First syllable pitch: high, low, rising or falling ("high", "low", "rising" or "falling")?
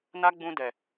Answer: high